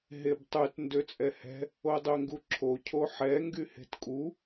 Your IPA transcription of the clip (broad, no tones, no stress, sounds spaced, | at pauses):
ɦ e b tˤ ʉ t n d ø t͡sʼ ɛ h ɛ̤ | o dˤ ø ŋ ɡ u ǁʰ o cʰ o ħ ɛ ŋ ɡ y h e̤ t kʼ u